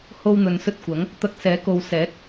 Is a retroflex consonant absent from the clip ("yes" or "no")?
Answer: yes